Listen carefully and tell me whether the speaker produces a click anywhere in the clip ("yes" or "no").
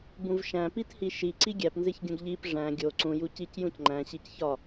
yes